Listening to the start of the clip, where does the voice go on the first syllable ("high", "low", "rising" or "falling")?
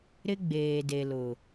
high